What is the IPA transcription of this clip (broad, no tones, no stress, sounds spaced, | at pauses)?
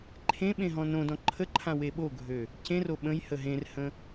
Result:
ǃʰ ẽ ɓ ẽ ɦ ɔ̃ n õ d ɔ̃ ǃʰ ə ǃʰ ã w e ɓ o ɡʱ ø | c ẽ r o ɓ ə̃ j h ə ɦ ẽ r h ə̃